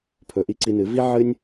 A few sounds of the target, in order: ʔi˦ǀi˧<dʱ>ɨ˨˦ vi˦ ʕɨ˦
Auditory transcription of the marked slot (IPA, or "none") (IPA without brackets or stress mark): n